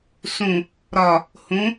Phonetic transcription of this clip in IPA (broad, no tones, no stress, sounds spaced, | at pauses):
s ũ | ɾ ɒ | h ũ